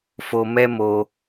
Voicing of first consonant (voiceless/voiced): voiceless